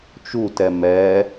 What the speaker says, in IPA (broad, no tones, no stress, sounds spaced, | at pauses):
t͡ʃ u t ɛ m ɛ